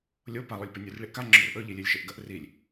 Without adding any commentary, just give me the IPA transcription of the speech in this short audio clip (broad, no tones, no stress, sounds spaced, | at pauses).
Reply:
lʲ o p a lˠ o lʲ p e nʲ ʉ r ɭ i ʔ k a ŋ͡ǁ ɵ r ʔ ɵ ʎ i lʲ e lʲ ʃ e ʔ ɡ ɐ ʔ r i lʲ